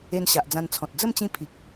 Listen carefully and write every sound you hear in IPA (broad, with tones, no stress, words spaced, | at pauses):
e˧nɕa˨ʔd͡zã˧nt͡sʰɔ̃˨t̚ d͡zə˥˧mt͡ɕĩ˧ pʰi˨k̚